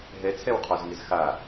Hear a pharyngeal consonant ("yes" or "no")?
no